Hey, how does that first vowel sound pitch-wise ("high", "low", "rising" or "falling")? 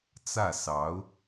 falling